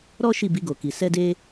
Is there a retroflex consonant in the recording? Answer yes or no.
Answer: no